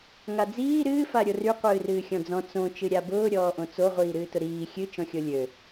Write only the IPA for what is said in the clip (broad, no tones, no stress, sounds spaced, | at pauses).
ŋ a d͡z iː ɾ ɨː f a ɾʲ o r y qʷ ɨː r ɨː xʲ ɔ̃ d͡z ɔ̃ t͡s õ t͡ʃ ɨ ɾʲ a b ʊː ɾʲ ɔː ʔ õ t͡s o ʁʷ iː ɾ ɨː t ʊ ɾ iː xʲ ɨ t͡ʃ ɔ̃ xʲ o lʲ ø